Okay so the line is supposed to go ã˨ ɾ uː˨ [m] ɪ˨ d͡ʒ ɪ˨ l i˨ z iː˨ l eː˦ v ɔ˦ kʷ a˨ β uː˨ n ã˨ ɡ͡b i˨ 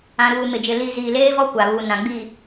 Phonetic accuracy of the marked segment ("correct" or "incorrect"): correct